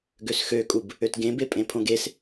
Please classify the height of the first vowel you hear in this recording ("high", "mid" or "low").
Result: mid